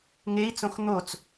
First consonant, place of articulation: velar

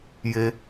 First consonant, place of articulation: palatal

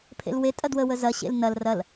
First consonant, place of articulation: labial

